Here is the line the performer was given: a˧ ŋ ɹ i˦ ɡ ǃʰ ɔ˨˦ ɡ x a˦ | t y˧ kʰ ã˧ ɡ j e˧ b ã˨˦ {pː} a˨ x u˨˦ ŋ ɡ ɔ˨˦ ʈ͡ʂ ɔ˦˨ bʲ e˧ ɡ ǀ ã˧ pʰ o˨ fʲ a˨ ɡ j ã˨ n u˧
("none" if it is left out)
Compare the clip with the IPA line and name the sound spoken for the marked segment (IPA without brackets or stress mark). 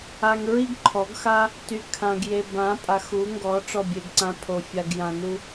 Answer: pʼ